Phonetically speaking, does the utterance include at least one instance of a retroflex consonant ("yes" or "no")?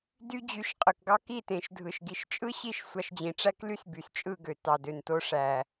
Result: yes